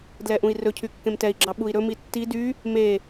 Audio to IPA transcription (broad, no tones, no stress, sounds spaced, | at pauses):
d l ɛ ʔ ũ i̯ r ɵ cʰ y kː ẽ m t ɛ i̯ ɡ͡ǁ ɑ ɓ u i̯ ɾ ɵ m i tː i d y | m e